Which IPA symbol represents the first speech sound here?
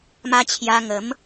m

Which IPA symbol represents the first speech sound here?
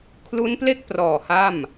kʰ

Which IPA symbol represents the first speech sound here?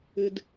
ɨ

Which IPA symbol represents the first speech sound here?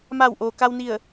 m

